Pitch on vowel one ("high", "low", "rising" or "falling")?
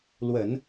low